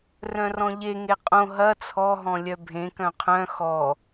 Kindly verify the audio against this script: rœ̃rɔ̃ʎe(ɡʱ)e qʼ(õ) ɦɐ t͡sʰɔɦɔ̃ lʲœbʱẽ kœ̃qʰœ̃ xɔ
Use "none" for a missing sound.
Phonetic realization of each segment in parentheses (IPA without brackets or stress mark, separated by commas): ŋ, õ